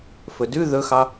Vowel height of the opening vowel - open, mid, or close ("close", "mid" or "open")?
mid